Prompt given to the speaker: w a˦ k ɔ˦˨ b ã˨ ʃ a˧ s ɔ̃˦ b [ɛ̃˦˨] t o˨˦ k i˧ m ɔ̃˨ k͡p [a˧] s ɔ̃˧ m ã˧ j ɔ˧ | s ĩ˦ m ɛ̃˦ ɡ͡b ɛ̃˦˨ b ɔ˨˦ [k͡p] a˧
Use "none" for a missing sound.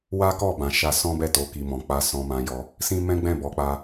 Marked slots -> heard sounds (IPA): ɛ˦˨, a˧, k͡p

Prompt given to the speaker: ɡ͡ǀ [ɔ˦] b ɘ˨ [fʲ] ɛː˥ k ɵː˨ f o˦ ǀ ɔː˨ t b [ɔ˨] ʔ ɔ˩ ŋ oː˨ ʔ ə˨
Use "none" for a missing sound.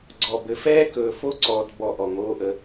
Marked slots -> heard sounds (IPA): ɔ˨, f, ɔ˨

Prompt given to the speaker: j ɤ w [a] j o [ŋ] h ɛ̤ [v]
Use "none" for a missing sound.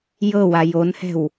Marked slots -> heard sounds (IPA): a, n, w

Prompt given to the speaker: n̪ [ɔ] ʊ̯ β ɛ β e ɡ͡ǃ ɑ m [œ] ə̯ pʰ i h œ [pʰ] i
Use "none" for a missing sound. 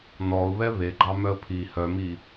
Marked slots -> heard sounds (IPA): ɔ, œ, m

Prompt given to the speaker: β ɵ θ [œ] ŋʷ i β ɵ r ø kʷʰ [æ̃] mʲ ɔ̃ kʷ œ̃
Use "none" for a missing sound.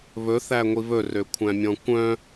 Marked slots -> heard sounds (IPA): æ, æ̃

